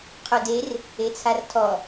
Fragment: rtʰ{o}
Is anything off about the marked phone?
yes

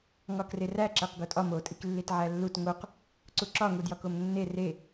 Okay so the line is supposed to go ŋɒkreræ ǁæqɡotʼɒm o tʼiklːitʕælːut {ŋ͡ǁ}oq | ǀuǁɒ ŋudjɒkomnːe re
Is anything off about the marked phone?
yes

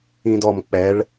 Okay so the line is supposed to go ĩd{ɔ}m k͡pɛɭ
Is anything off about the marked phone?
no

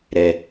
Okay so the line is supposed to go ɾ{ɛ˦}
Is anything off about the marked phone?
no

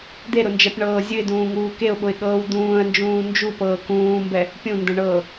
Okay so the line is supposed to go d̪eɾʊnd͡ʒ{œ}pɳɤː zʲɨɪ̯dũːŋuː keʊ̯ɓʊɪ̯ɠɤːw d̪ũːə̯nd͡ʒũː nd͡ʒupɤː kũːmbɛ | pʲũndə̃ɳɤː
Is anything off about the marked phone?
yes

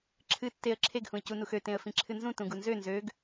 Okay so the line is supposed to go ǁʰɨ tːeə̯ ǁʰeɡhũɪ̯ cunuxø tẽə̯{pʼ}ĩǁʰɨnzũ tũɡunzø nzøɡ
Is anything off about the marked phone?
yes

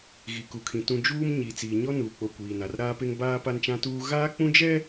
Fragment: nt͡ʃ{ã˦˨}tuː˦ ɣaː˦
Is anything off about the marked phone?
yes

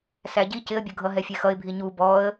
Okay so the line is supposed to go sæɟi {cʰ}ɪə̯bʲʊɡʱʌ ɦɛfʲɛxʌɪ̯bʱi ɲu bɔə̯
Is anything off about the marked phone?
yes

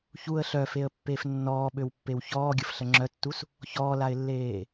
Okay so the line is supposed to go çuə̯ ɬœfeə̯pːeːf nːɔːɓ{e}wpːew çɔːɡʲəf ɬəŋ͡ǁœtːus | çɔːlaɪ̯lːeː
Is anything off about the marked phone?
yes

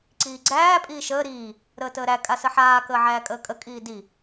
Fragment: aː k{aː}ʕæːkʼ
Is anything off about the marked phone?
yes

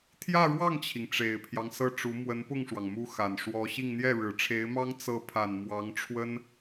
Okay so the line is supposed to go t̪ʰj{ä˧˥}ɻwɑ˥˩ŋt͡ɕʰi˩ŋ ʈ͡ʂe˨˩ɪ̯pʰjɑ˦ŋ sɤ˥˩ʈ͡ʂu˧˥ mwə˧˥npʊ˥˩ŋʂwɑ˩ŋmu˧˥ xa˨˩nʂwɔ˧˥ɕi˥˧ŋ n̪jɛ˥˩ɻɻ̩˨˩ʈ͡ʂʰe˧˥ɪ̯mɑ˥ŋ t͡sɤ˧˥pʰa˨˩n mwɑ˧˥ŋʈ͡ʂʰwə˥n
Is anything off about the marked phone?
yes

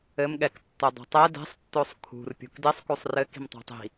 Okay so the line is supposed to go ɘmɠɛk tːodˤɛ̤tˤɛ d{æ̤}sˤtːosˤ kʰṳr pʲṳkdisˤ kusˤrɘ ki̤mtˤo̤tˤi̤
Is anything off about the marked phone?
yes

